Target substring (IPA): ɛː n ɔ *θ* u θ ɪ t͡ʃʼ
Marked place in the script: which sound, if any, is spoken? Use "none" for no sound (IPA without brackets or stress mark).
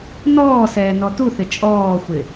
t